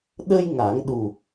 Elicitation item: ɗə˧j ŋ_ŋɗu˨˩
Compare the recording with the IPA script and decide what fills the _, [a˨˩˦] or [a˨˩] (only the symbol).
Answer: a˨˩˦